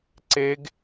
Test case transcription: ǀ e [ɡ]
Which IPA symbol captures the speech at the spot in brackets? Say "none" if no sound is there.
ɡ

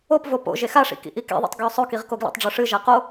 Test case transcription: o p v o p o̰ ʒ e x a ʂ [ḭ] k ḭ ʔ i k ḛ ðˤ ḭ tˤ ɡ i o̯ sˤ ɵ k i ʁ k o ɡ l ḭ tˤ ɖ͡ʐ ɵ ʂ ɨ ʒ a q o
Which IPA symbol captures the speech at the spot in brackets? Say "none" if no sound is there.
ḭ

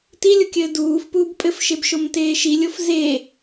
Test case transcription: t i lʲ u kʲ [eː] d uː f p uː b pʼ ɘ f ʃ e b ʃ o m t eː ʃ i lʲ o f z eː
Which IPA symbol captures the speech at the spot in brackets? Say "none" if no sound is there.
ɘː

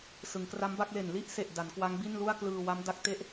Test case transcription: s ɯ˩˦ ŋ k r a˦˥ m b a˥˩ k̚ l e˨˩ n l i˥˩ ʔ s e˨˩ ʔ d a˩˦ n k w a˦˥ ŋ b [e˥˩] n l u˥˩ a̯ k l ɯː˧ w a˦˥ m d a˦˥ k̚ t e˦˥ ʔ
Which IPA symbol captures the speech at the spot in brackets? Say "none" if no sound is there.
i˥˩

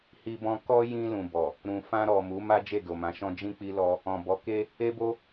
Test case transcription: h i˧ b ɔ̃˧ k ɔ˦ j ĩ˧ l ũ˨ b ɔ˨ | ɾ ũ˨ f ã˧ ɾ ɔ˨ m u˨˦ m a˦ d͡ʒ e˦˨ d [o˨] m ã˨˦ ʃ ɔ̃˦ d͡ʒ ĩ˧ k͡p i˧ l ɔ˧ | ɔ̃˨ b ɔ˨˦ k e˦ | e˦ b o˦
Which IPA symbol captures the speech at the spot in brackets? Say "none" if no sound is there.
o˨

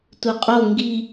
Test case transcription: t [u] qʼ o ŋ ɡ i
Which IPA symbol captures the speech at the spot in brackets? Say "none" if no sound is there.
u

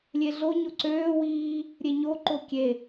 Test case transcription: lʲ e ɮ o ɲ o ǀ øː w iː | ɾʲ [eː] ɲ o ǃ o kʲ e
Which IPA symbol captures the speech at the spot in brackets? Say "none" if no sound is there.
e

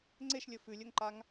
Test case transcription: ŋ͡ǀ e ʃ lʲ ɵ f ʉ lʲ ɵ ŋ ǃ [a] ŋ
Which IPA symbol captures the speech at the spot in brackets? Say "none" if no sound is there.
a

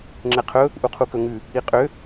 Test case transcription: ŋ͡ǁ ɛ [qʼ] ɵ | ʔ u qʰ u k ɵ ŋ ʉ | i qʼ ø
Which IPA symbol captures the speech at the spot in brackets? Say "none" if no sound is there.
qʰ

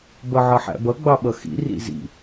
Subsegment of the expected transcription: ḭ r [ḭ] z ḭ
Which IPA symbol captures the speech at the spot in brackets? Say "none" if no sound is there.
ḭ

